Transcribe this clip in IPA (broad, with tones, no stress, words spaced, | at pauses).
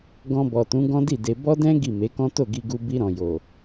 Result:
ɡɔ̃˧bɔ˨tũ˨˦ ɡɔ̃˦di˦˨de˧ bɔ˦dɛ̃˦ ɡi˦˨me˨˦kɔ̃˦ to˦˨ɡi˧ɡu˧ bi˧ɾɔ̃˨jo˨